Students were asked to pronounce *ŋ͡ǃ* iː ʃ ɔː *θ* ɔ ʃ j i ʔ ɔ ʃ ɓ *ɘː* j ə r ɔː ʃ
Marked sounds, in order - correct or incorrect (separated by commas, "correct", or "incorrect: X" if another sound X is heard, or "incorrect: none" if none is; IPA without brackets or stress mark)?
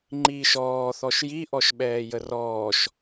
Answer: correct, correct, incorrect: ɛː